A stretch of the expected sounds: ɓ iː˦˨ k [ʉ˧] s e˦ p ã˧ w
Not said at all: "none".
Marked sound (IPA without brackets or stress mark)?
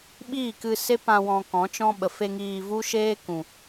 ɨ˧